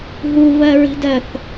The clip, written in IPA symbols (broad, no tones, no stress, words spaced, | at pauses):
ɦuvɜɹi̤dɜθ